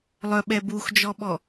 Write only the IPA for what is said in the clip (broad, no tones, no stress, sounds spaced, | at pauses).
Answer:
lˠ œ ɓ ɛ b u x d͡ʒ ɔ ɓ ɔ